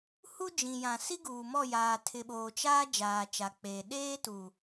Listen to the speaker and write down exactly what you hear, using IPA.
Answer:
h u˦ d͡ʒ ĩ˨ j ã˨ s i˦ ɡ uː˨ m ɔ˦˨ j aː˨ tʰ ɪ˨ ɓ oː˨ t͡ʃ aː˦ d͡ʒ aː˨ t͡ʃ a˨ k͡p eː˨ ɗ eː˦ t u˨

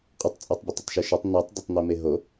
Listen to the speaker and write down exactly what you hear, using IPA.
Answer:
qʼ ɘ tˤ t͡sʼ e tˤ bʲ ɘ tˤ ɘ tˤ ʃ ɨ ʃ ɐ tˤ n i tˤ d e tˤ n̪ i m e ɦ o

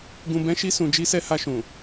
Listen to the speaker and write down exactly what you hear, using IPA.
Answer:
ɡ ũ˨ b ɛ̃˨˦ ʃ i˧ s ũ˨ d͡ʒ i˨˦ s ɛ˧ h a˧ ʃ ũ˨

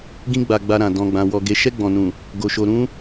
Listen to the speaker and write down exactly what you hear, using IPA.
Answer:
ɡ ĩ˧ ɡ͡b a˨ ɡ͡b a˧ ɾ ã˨ d ɔ̃˨ ɡ͡b ã˨ w ɔ˨ ɡ e˨ ʃ ɛ˧ ɡ͡b ɔ̃˨ n ũ˨ | ɡ o˨ ʃ o˨ ɾ ũ˧

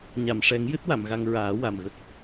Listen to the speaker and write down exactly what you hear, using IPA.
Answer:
ɲ a˨˩˨ m ʂ ɛ˨˩˦ ŋ j ɨ˦˥ t̚ w a˨˩˨ m ɣ a˧ ŋ ɹ aː˨˩˦ w a˨˩ m ɣ ə˦˥ k̚

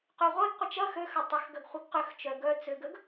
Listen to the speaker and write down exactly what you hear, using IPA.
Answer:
q ø ʁʷ e ɡ qʷ ɪ t͡ʃ ɐ x ø x ɐ tˤ ʏ x ɡ ɐ ɡ χʷ ɪ ɡ q ʏ x t͡ʃ œ ɡ œ t͡s ʏ ɡ ə ɡ

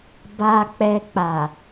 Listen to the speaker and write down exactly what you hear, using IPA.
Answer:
b a˨ k͡p ɛ˨ k͡p a˨

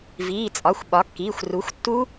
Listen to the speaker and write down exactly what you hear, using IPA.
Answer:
v iː˩˧˩ t͡sʼ ɒ˩˧˩ xʷ ɓ ɒ˩˥ kː iː˩˧˩ xʷ r u˩˥ xʷ tː u˦˥

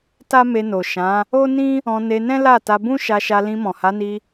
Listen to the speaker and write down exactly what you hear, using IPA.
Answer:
t a˦ m e˧ n o˨ ʃ ã˨˦ | o˦ n ĩ˦ | ɔ̃˧ n e˧ n ɛ̃˦ l a˦˨ t a˧ b ũ˦ ʃ a˧ ʃ a˧ l ĩ˧ m ɔ̃˨ h a˨˦ n i˧

